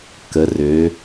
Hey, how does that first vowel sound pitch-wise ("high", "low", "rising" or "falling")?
rising